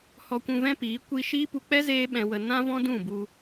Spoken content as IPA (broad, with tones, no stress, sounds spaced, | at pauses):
h ɔ˧ kʷ ũ˧ v ɛ̃˦ p iː˨˦ kʷ i˧ ʃ iː˦ p u˧ k͡p ɛ˦ z eː˦ ɓ ɛ̃˧ w ə˧ n ã˦ v ɔ̃˦ d ũ˦˨ b u˧